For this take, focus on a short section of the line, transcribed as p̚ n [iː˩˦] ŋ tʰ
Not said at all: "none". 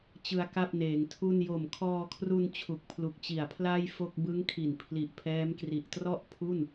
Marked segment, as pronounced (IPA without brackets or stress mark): eː˩˦